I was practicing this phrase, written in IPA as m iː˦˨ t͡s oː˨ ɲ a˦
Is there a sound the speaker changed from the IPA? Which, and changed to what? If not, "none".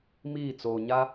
none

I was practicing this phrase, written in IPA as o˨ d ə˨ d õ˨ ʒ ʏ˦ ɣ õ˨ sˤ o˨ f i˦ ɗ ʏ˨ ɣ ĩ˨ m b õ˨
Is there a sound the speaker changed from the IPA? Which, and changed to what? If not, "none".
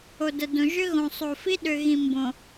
none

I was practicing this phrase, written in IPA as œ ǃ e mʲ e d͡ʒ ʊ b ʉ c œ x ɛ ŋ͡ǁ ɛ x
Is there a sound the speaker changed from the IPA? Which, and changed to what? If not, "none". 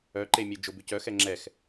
none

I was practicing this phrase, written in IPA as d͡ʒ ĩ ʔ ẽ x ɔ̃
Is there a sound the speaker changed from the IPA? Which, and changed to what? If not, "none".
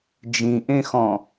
none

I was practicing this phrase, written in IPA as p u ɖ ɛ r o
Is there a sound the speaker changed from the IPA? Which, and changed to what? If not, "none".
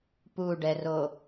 none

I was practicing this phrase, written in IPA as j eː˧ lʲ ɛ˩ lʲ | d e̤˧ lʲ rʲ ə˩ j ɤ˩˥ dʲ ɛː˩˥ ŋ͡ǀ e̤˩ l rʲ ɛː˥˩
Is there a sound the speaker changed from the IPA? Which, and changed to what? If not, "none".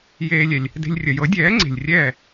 l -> lʲ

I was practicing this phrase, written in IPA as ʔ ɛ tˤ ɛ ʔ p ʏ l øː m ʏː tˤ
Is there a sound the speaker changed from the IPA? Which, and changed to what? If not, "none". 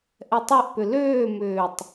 none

